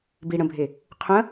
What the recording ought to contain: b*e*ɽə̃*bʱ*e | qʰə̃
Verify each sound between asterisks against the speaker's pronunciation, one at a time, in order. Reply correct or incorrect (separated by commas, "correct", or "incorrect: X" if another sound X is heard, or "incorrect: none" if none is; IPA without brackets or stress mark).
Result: incorrect: i, correct